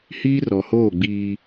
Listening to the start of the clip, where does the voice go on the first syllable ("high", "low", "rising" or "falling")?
high